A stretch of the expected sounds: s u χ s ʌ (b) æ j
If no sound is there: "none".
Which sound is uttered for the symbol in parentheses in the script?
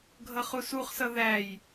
ð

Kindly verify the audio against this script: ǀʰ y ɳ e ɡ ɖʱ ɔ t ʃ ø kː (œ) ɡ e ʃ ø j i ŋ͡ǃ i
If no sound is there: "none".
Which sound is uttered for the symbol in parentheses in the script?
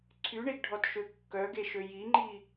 œ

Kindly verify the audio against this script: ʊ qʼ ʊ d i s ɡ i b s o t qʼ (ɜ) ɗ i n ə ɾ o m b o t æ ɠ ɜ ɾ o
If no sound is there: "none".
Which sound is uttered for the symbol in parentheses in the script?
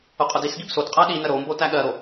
æ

